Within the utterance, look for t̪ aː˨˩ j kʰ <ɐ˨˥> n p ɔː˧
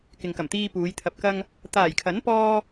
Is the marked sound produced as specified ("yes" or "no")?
yes